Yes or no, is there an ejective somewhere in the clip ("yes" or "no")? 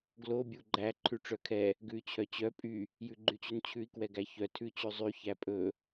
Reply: yes